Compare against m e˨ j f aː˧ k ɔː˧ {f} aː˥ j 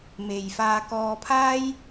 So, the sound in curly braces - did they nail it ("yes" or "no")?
no